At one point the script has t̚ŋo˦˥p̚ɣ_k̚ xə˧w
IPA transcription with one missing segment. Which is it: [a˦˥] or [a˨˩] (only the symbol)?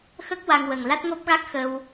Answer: a˦˥